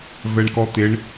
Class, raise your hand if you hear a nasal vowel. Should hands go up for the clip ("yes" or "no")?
no